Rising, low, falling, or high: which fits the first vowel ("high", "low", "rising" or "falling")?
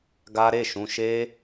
high